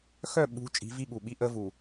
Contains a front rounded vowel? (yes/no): yes